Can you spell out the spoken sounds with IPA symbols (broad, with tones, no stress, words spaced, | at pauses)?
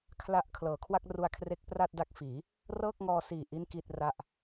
kʰla˦˥ʔ kʰlɤː˩˦kʰwa˥˩k̚ru˧a̯kʰre˦˥k̚ pra˥˩t̚da˦˥k̚fiː˩˦ | rɤː˥˩k̚ŋɔː˧siː˨˩ ʔi˥˩nki˥˩t̚ra˥˩ʔ